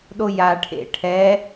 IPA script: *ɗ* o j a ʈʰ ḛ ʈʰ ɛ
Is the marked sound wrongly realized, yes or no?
no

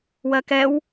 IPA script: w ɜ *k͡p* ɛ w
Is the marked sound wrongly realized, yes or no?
yes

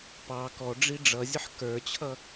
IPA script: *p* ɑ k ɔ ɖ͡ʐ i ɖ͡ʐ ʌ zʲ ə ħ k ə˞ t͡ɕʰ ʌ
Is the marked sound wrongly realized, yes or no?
no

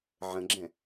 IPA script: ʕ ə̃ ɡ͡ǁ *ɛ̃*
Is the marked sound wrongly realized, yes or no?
no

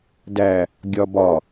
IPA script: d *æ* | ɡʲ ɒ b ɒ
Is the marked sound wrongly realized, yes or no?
no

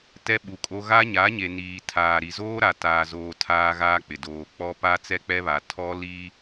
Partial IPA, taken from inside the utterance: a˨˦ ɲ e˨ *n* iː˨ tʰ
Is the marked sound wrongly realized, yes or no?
no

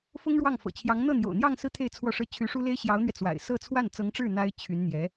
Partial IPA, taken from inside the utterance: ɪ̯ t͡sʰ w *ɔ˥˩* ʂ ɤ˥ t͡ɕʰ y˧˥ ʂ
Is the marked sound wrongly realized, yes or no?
no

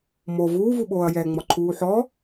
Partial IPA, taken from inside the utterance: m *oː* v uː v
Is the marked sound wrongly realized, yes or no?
yes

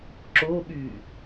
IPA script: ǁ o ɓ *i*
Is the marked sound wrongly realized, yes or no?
yes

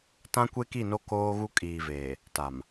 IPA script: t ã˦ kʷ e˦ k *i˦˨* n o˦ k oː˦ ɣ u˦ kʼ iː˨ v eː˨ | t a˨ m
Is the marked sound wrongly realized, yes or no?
no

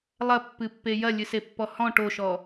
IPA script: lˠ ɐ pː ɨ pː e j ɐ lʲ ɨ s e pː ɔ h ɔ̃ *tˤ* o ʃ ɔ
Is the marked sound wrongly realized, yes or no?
yes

